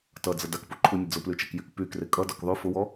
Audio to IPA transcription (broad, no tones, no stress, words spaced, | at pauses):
tʌd͡zə dakpuǃʰunʲə d͡zʊplyt͡ʃɛkjyk pykre kʼʌdɔk ðˤy fʊwɔ